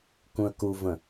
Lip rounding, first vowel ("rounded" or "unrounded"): rounded